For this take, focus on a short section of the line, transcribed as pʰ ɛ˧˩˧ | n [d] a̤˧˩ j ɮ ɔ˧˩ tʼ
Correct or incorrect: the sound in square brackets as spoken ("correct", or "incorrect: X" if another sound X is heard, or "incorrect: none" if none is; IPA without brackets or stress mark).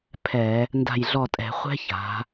correct